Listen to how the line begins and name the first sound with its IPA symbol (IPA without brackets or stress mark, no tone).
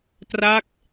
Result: t